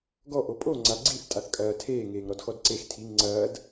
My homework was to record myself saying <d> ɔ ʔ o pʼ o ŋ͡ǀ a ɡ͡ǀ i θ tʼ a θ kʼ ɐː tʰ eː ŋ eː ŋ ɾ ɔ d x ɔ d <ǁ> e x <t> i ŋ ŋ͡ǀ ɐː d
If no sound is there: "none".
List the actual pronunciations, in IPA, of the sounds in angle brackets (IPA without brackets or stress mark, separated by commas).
ɡ, ǀ, tʰ